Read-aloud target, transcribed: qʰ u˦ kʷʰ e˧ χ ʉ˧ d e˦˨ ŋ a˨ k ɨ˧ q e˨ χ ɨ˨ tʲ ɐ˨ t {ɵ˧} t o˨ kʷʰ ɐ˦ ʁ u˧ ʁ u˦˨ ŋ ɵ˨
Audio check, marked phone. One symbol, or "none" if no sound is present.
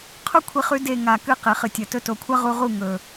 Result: ɵ˧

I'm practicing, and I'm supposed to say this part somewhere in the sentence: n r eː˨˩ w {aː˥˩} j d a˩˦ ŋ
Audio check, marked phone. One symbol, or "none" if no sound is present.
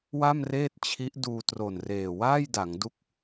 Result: aː˥˩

